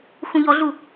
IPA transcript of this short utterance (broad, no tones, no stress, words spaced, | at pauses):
xũʎɔɮu